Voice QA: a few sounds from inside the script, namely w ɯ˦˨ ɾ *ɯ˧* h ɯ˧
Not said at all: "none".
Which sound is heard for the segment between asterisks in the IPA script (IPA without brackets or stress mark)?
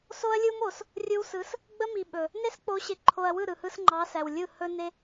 ɯ˨